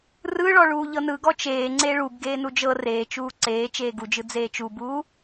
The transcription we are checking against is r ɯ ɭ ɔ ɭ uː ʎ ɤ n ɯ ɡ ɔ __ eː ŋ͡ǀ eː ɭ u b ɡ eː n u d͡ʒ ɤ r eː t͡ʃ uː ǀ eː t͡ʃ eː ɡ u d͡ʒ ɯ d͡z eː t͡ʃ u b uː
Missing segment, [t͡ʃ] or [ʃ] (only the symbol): t͡ʃ